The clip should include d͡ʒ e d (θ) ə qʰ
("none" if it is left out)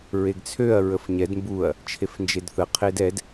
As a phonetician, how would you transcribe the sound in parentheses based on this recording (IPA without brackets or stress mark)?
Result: θ